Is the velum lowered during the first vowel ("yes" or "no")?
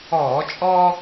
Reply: no